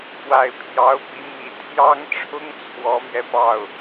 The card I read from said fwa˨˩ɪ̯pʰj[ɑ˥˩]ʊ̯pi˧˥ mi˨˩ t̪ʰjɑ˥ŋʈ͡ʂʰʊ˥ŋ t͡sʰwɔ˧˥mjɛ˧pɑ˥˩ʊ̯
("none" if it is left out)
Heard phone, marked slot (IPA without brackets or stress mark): ɑ˧˥